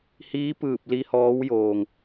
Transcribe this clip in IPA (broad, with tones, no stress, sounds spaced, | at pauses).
h iː˧˥ p ɯː˧˩ p̚ l i˧ h ɔː˧˥ w j oː˩ ŋ